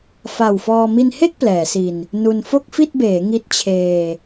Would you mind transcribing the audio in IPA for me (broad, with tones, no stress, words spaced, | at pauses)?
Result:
fa˨˩wfɔː˧ mi˧nhe˥˩k̚ plɛː˩˦si˧n | nu˧n fo˥˩k̚fi˥˩t̚beː˩˦ ŋi˦˥t̚t͡ɕʰeː˧